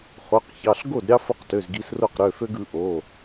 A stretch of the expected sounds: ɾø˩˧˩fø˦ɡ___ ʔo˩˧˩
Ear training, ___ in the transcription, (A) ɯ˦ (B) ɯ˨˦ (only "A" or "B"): B